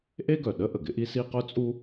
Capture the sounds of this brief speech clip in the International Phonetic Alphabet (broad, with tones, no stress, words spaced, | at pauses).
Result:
ʔe˥ɡœ˩ɗə˥ ʔə˩ɡɪ˥ʔi˥si˥ qœ˥t͡sʼu˥